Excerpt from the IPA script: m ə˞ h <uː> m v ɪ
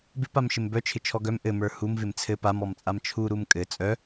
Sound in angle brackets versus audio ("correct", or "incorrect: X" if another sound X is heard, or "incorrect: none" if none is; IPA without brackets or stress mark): incorrect: u